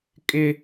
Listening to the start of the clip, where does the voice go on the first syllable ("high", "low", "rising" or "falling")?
high